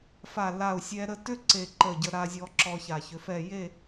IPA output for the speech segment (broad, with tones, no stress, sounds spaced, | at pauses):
f a˧˩ l a˧˩ u̯ sʲ ɛ˧ ɾ ə˧ t ʏ˥ ǀ e˧˩ ǃ ə˧˩ ɟ ə˧ ɾ a˧ zʲ ɔ˧ ǁ ɔ˧ ç a˧˩ ç ʏ˧ f ɛ˥˧ j e˥˧